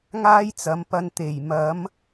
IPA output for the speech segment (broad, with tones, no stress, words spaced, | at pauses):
ŋaː˥jt͡sɐ˨˥mpɐ˧n t̪e˨˩j mɐ˨˥m